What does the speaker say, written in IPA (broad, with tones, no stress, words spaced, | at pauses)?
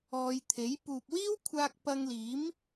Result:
ɔː˧jt̪ʰe˨˥j puː˨p̚wiː˥wkʷʰaː˧k̚ pɐ˧ŋliː˨˥m